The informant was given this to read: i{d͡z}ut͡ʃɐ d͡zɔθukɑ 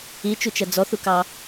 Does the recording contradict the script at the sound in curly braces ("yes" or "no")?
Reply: yes